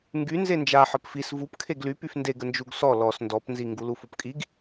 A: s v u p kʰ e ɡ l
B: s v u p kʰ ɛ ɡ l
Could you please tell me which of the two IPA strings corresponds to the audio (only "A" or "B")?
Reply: A